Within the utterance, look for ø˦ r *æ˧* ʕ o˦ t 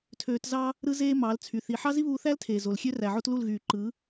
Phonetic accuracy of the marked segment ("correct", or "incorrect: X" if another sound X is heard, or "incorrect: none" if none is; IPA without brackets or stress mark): incorrect: æ˨